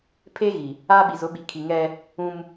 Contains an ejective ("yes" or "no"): no